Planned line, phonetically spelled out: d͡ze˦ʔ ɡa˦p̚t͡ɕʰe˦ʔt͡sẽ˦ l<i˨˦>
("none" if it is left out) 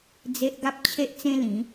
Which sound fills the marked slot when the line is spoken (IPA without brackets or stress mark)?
ĩ˨˦